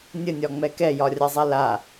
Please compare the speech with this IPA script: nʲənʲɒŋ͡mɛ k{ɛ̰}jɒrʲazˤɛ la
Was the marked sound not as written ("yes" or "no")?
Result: yes